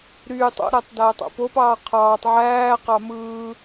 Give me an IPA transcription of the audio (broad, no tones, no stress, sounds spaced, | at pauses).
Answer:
ɾ yː tˤ o̰ ɾ æ tˤ d æː tˤ o̰ p o p ɑː qʰ ɑː tˤ ʕ æː q ɑ m ɯː